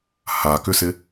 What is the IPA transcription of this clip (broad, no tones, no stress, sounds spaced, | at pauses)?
h a k ʏ s ɪ